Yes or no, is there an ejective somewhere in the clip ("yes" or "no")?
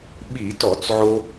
no